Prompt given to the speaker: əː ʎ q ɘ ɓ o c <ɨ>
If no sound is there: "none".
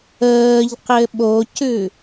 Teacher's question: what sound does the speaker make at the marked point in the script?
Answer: ʉ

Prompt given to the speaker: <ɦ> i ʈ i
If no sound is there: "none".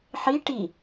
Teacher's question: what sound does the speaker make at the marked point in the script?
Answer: ħ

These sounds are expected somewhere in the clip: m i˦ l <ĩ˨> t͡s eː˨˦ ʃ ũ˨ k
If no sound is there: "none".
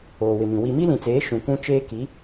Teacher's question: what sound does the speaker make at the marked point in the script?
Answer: ĩ˨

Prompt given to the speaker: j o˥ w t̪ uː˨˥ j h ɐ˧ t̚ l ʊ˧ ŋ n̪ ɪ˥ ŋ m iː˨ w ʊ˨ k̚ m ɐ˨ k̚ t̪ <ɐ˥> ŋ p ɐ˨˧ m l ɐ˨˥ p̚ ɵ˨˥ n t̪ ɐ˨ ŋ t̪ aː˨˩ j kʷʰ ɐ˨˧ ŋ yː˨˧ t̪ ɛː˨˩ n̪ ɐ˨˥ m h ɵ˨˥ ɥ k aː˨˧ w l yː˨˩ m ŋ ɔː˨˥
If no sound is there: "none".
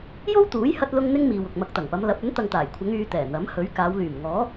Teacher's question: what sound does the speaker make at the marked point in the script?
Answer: ɐ˨˩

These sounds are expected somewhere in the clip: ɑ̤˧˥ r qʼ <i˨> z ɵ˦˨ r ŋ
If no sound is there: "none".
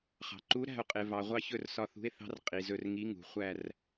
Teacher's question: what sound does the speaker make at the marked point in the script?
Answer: i˨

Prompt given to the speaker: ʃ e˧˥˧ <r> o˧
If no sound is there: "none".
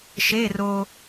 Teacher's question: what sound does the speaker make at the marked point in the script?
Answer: r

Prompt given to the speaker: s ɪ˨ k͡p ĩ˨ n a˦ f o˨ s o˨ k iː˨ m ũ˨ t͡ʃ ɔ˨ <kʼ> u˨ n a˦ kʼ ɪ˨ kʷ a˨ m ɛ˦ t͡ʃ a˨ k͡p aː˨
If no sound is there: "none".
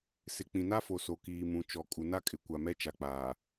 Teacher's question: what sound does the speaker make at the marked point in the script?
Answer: kʼ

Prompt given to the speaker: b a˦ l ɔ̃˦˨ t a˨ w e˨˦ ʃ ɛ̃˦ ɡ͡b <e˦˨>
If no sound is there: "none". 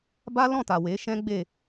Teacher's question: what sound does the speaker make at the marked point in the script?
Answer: e˦˨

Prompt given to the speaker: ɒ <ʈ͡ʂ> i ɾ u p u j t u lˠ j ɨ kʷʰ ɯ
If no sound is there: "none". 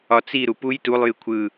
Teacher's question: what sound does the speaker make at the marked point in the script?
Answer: t͡s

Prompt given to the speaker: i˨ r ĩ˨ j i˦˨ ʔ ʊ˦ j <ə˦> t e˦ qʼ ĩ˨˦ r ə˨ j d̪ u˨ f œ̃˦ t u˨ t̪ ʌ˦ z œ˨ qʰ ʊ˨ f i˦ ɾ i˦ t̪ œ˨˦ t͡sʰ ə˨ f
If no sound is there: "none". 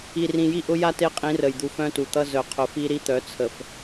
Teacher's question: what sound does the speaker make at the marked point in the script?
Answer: a˦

